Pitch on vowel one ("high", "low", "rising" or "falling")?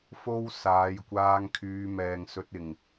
high